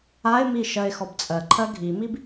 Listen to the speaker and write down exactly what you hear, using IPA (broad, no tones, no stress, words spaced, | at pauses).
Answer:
ae̯mi ʃɜe̯xɔbt͡sʼɜǃʰɜ ɡʱimib